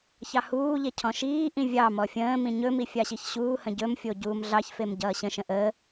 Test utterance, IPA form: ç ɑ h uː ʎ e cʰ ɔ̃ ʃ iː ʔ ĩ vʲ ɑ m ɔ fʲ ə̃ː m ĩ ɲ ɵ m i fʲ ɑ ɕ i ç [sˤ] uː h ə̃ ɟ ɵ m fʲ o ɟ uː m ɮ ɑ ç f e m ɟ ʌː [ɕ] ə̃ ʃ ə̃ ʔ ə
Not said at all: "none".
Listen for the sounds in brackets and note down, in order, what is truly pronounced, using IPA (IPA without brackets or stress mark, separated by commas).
ɕ, ɕ